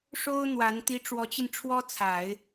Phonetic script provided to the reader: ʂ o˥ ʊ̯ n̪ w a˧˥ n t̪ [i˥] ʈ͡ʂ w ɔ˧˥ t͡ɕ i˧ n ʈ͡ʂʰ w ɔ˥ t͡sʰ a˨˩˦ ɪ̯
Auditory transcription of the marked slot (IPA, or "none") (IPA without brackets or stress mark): i˥